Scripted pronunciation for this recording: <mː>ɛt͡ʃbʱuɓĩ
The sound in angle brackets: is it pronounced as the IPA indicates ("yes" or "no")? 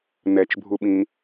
no